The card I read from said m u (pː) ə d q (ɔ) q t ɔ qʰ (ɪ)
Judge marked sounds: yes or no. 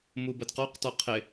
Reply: no, yes, yes

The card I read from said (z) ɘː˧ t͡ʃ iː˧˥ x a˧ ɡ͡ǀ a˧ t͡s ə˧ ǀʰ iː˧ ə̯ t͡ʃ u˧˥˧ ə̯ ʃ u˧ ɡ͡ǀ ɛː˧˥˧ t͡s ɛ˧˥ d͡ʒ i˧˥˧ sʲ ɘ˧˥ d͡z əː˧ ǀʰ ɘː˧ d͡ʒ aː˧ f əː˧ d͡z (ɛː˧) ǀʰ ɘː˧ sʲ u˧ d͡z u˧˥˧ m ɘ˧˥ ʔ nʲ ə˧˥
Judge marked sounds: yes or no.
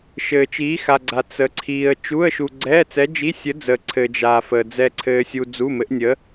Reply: no, no

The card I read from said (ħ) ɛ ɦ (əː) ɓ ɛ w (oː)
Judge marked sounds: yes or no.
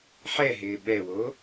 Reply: yes, no, no

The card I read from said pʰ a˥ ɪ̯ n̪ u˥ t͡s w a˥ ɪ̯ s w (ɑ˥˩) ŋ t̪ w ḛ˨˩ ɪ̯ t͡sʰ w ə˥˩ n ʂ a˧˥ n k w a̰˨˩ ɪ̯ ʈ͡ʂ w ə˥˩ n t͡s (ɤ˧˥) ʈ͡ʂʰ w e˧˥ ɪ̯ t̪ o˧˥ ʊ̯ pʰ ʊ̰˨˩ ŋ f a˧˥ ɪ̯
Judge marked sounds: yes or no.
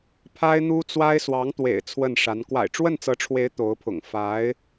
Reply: no, yes

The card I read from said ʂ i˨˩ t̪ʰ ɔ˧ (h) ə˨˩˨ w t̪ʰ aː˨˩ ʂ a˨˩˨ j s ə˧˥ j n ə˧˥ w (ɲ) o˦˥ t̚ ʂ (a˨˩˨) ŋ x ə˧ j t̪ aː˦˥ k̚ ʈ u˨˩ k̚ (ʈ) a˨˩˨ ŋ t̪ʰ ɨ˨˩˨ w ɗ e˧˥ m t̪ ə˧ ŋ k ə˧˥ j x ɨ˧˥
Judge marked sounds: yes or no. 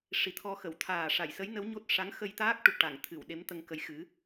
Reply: no, yes, no, yes

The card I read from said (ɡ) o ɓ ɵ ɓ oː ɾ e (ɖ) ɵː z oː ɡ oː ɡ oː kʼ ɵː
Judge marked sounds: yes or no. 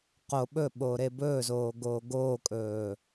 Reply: no, no

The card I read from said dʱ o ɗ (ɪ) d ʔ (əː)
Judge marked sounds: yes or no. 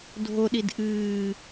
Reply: no, no

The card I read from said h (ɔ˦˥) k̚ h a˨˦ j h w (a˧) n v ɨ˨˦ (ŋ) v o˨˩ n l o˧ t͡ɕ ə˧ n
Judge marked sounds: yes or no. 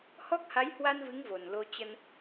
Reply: yes, yes, yes

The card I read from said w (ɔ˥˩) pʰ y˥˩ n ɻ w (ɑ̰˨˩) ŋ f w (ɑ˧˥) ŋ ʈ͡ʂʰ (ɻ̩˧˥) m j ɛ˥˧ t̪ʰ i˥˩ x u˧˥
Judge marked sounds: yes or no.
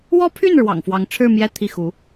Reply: no, yes, yes, no

